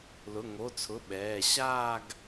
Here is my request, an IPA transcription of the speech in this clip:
l ʊ˩˧˩ ŋ o˩˧˩ t͡sʰ ʊ˩˧˩ ɓ ɛː˩˧˩ ɕ aː˥˧ ɡ

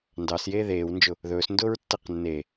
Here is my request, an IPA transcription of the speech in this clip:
n d ɑ s j eː ð eː w n d͡ʒ ʊ | ð ɵː s n d ʊː ɹ tː ɛ q nː e

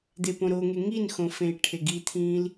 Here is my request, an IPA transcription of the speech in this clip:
d̪ e p õ ɾ o ŋ e ŋ i n x õ f ẽ i̯ ʈʰ e ɡ i t̪ʰ ĩː l

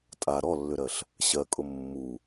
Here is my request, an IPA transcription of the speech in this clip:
tʼ a ɾ ɔ lː ʏ ɾ ɜ ɬ | ɕ ɜ kʼ ʊ mː u

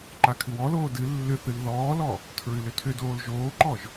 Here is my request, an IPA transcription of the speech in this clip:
ǃ a kʰ ɨ w ɔ l oː d ɨ lː ʏ θ ɨ l ð ɔː l ɔ | tʰ ɹ ɨ l ʏ tʰ ʏ d oː l ʒ oː ǃ ɔ ʒ

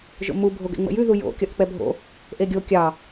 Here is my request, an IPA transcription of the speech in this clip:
ʒ o̰ m u bʱ o ɡ ɛ̰ ŋ͡m ə̰ j ʉ ð u j o̰ kʲ ɒ ʔ k͡p ɛ bʱ o̰ | ʔ e ɡʲ o kʲ ɑ

